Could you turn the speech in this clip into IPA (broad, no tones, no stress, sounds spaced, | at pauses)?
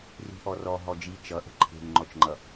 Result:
r i̤ ʔ ɔ r ɔ ɦ ɔ d͡ʒ i t͡ʃ ʌ ʔ ə̤ ǃʰ e̤ ŋ ŋ͡ǃ ɔ t͡ʃ ŋ͡ǃ ʌ